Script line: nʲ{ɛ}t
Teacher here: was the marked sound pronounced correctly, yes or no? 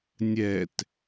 yes